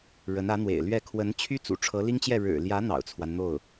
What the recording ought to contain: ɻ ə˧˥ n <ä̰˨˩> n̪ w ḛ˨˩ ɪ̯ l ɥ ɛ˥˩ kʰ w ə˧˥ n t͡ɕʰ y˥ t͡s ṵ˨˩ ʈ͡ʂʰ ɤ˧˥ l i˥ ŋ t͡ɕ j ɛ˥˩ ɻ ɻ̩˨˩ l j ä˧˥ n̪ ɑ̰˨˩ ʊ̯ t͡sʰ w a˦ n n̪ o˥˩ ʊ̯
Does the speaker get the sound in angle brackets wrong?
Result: yes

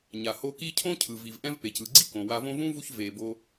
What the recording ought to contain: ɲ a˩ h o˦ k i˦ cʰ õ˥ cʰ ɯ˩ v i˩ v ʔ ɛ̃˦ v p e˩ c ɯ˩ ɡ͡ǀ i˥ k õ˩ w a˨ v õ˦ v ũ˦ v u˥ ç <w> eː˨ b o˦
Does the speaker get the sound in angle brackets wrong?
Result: yes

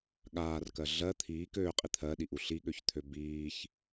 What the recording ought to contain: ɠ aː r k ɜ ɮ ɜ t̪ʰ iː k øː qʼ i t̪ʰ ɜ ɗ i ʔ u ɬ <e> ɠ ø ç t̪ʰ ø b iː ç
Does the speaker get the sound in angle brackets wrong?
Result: yes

